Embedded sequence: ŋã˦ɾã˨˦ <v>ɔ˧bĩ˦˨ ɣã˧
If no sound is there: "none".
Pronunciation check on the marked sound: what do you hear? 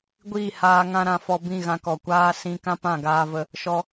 f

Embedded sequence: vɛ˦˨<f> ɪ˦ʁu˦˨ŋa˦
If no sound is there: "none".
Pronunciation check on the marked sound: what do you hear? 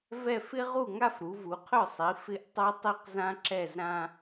f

